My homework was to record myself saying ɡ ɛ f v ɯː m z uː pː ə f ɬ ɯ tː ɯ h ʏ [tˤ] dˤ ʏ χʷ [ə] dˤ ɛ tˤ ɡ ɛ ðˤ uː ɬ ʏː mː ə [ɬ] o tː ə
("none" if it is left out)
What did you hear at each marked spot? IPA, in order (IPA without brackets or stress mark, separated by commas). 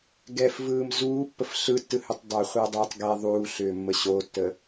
tˤ, əː, ɕ